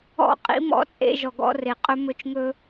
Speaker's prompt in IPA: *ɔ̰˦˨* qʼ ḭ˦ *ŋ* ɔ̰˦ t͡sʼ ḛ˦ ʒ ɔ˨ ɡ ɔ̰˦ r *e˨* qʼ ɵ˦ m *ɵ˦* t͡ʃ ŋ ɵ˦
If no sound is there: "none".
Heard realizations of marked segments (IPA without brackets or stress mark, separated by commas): ɔ̰˦˨, m, e˨, ɵ˦